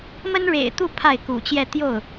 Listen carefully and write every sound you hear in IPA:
m ə˥ n ɻ ḛ˨˩ ɪ̯ t̪ u˥˧ pʰ a˥˩ ɪ̯ k ṵ˨˩ t͡ɕ j ɛ˥˧ t̪ j o˥˩ ʊ̯

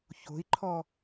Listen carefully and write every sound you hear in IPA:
ç o̤ i̯ ǃʰ ɔ

